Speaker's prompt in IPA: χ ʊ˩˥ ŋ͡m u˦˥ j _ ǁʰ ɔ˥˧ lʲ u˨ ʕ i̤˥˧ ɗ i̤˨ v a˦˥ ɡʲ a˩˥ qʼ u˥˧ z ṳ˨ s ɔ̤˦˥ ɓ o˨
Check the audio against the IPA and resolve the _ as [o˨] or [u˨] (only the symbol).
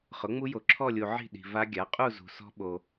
o˨